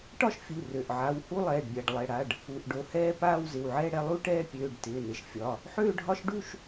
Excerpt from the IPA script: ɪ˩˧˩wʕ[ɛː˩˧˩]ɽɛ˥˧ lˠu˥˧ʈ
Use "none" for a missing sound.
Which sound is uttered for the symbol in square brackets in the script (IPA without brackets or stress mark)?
ɛː˥˧